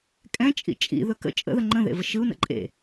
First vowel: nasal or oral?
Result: nasal